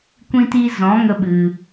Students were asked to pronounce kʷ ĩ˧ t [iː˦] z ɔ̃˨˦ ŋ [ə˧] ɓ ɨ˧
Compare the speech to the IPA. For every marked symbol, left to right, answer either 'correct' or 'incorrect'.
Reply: incorrect: iː˧, correct

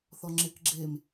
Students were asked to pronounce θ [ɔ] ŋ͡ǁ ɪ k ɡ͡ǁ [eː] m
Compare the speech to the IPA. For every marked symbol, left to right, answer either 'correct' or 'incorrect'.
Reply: correct, correct

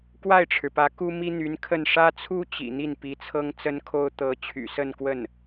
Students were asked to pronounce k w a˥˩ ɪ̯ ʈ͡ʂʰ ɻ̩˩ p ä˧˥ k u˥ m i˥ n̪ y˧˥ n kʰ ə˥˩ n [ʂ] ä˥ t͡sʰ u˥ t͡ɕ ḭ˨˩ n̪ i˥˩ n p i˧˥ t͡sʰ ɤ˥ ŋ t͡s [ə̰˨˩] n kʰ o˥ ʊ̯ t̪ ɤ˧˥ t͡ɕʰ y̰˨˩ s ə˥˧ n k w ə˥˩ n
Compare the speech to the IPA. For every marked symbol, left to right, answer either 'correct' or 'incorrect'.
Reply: correct, incorrect: ə˥

